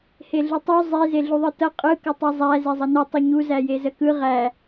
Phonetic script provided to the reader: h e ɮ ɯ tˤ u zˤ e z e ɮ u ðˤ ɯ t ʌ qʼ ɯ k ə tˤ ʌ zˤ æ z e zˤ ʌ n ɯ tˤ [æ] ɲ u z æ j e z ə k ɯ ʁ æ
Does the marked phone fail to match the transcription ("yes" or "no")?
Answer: yes